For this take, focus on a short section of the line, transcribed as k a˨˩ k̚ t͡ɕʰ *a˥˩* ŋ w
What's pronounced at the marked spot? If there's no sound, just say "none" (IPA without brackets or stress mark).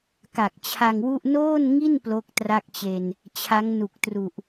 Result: a˧